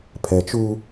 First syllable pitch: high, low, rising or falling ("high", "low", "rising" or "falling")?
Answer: low